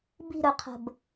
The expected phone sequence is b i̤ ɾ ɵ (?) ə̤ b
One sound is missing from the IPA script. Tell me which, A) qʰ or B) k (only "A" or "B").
A